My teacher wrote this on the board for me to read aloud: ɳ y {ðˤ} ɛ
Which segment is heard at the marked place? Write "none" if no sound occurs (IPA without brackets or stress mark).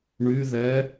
ð